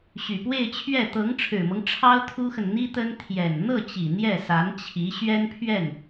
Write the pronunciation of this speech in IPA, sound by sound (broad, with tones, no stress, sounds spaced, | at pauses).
ɕ y˨˩ p w e˥˧ ɪ̯ t͡ɕʰ ɥ ɛ˥˩ t̪ ɤ˧˥ ŋ ʈ͡ʂʰ ɻ̩˨˩ m ɤ˦ ŋ ʈ͡ʂʰ ɑ˥ ʊ̯ t̪ʰ u˥ x ə˨ n n̪ i˥ t̪ ə˥ n t̪ʰ j ɛ˨˩ n n̪ ɤ˥˩ t͡ɕ i˨˩ n̪ j ɛ˥˩ s a˧˥ n t͡ɕʰ i˧˥ ɕ ɥ ɛ˥ n pʰ ɥ ɛ˥˩ n